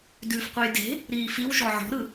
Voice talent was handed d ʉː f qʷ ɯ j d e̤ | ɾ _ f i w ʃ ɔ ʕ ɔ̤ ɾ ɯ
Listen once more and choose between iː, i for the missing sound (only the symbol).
iː